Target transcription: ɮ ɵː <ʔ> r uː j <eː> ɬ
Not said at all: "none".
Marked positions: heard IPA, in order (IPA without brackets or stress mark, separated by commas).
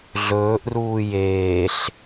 ʔ, eː